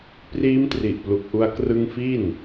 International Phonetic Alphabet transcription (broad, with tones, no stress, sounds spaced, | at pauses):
p r iː˦˥ m t r i˨˩ ʔ p l u˨˩ k̚ ʔ u˧ a̯ k r ɯ˦˥ ŋ f i˥˩ n